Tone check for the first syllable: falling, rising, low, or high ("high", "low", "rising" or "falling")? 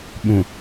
low